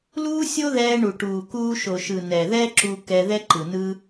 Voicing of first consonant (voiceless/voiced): voiced